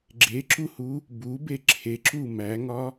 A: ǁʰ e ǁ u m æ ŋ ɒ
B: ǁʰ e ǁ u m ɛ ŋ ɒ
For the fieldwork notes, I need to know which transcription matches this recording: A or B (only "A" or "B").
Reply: A